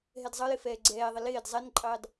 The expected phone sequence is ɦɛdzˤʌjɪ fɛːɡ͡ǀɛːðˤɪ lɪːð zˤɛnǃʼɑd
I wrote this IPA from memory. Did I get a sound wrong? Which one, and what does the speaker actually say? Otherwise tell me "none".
ð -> d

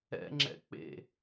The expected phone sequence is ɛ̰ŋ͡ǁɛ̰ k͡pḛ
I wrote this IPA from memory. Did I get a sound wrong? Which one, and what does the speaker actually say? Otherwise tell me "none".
none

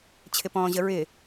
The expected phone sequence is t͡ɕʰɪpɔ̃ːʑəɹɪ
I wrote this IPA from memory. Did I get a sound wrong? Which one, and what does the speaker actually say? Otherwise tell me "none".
none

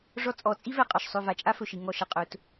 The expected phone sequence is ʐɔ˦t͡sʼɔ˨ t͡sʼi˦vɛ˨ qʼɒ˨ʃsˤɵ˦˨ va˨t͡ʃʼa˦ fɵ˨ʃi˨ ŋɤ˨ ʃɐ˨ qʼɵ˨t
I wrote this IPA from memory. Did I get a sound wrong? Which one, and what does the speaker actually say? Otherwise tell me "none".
ɤ˨ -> ɔ˨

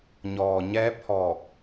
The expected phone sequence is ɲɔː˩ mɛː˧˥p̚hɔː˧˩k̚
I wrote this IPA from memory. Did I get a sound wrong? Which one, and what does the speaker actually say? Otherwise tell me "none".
m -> ɲ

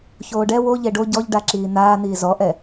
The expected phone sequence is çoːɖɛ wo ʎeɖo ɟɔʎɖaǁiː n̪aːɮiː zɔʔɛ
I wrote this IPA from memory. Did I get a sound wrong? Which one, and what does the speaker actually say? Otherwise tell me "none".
ɮ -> n̪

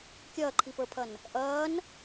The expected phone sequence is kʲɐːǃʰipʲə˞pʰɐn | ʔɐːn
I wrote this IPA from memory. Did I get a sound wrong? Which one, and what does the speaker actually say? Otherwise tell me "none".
pʲ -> p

